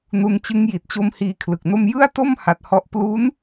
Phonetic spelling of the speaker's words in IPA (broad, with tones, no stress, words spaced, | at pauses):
nu˧nt͡ɕɯ˦˥ŋji˨˩t̚t͡ɕo˦˥m hiː˧kʰlɯ˨˩k̚no˥˩m jɯ˥˩a̯to˥˩m ha˦˥t̚hɔ˥˩ʔ plu˦˥n